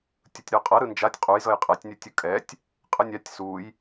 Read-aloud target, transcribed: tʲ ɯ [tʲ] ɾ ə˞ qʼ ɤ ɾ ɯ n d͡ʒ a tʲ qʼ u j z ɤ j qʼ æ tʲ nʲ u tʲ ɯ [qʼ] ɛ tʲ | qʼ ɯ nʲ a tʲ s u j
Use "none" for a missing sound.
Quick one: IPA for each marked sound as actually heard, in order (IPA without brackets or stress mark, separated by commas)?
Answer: tʲ, kʼ